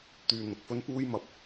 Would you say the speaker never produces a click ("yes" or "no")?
yes